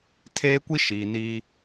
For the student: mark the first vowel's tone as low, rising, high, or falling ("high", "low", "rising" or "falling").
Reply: high